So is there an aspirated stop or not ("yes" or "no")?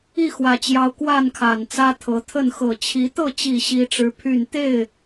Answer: yes